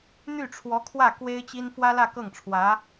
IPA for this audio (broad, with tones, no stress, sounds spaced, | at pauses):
n̪ y˥˩ ʈ͡ʂʰ w ɔ˧˥ kʰ w ä˥˩ k w e˥ ɪ̯ t͡ɕ i˥ n f w ä˥ l ä˥˧ k ɤ˥˩ ŋ ʈ͡ʂʰ w ä˧˥